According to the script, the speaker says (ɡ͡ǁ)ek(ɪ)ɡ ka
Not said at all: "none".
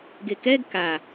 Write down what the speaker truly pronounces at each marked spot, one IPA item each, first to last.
ɡ, ɛ

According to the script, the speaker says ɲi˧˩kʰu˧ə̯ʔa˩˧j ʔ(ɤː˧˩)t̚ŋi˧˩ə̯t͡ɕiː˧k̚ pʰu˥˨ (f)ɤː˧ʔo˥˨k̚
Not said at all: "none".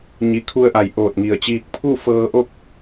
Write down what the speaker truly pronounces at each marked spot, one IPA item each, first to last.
oː˧˩, f

